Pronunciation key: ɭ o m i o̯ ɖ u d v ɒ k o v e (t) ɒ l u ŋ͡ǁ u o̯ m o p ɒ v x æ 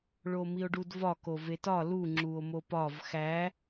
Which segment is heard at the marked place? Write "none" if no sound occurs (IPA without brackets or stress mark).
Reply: t